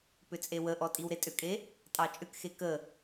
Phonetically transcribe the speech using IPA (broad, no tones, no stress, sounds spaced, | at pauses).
p ʏ t͡sʼ e w ə ʔ ɔ tʼ i w ɾ e tʼ ʏ kʼ e | tʼ ɑ t͡ʃʼ ʏ k x e k ə